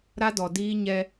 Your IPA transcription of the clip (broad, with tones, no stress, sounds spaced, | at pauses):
ɾ a˦ d ɔ˨ d iː˦ ɲ ɛ˦